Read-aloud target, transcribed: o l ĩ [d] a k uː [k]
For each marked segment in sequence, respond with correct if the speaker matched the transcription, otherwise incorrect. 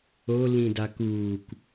correct, correct

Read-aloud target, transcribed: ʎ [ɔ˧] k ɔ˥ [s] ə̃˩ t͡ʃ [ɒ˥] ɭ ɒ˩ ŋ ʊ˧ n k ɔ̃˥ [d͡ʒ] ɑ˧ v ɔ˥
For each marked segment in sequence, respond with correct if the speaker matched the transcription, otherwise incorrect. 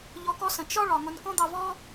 correct, correct, correct, incorrect: d̪

